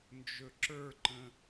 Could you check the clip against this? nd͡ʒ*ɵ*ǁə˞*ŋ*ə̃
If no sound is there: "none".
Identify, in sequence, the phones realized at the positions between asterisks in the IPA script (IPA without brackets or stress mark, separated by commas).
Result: ɵ, ǃ